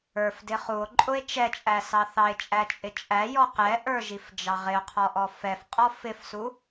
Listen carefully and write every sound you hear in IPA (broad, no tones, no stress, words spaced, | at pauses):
ə˞fdɪ χuo̯ǃʼʊe̯ t͡ʃɛt͡ʃʼæsɑ θɑe̯t͡ʃʼæt͡ʃʼɪ t͡ʃʼæjɔ qɛʔə˞ʒifd͡ʒɑ ʁɪo̯qʰɔʔɔ fɛfqʼɔ fɪfsu